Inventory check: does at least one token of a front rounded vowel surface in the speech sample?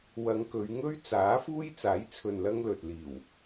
no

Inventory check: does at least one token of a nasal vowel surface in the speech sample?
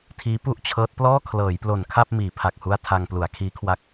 no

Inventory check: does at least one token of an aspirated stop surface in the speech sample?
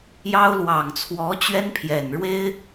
yes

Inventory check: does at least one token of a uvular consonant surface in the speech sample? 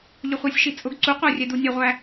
yes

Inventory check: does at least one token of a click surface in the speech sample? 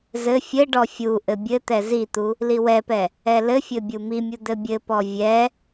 no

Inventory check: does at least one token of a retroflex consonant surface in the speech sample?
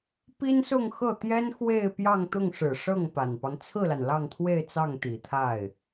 yes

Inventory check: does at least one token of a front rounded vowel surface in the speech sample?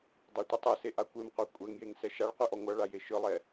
no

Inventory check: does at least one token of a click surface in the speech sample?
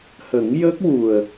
no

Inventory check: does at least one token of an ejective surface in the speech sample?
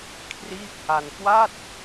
no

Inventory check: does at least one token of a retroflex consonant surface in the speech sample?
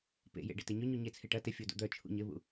yes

